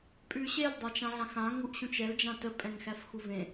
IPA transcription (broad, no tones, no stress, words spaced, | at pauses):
pʼʉɕel dˤæt͡ʃãʕãxã ŋuʔɕũt͡ʃɛl d͡ʒãtə pʼɛ̃ŋxæfxuvẽ